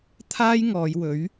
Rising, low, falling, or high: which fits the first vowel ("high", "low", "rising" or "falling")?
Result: high